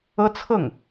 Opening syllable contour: high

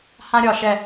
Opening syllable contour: high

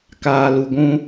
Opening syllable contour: low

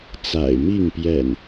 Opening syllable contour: low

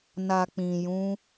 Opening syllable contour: low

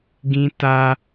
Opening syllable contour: high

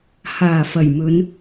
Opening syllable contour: low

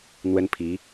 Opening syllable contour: high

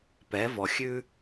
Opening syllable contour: rising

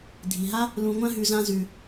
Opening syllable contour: low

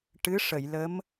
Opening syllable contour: rising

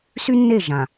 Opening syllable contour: high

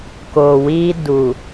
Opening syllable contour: low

